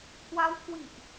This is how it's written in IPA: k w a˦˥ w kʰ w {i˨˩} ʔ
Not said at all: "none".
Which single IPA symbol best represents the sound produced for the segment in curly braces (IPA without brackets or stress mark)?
i˨˩